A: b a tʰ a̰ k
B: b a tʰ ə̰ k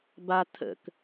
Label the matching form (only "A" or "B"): B